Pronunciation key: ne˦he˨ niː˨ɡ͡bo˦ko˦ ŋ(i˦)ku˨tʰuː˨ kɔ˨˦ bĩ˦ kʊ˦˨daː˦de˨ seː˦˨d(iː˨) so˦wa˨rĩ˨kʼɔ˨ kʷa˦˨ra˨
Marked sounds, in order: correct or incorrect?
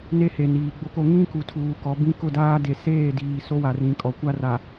incorrect: ĩ˦, correct

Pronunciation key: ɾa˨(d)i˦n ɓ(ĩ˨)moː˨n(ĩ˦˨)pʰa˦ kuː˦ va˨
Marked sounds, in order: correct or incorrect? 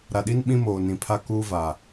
incorrect: ɗ, incorrect: ĩ˦, incorrect: ĩ˨

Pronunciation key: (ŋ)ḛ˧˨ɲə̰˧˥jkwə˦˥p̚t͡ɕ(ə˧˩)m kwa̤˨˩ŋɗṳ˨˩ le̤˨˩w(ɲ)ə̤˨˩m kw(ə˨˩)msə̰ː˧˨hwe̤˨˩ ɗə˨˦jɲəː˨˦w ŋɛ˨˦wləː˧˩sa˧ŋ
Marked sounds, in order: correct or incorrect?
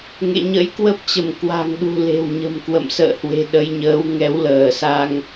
correct, correct, correct, incorrect: ə̰˧˨

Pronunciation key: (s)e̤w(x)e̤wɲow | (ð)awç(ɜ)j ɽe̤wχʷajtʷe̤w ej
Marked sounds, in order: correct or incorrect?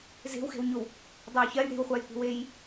incorrect: z, correct, incorrect: dˤ, correct

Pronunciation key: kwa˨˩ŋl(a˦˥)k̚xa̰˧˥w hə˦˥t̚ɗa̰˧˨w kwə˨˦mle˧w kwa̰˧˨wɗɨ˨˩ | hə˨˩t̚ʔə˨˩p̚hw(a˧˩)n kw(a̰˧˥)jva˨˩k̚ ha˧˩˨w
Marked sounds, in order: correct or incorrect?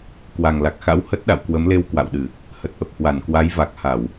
incorrect: a˨˩, correct, incorrect: a˨˦

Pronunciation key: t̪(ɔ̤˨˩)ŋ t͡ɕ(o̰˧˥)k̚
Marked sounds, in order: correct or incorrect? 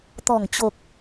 correct, incorrect: o˨˩

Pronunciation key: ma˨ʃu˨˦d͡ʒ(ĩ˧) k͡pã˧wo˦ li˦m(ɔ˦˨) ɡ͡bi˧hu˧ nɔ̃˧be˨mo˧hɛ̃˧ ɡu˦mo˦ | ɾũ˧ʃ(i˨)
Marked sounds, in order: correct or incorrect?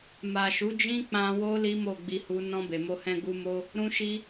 incorrect: ĩ˦, incorrect: o˦˨, incorrect: i˧

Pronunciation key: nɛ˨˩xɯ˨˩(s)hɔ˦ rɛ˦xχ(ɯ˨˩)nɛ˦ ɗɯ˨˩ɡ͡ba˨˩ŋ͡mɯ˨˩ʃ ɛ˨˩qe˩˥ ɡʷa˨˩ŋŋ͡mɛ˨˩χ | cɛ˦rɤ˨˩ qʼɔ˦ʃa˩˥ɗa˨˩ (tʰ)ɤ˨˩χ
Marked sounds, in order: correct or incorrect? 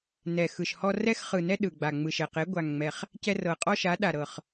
incorrect: ʃ, correct, incorrect: ɾ

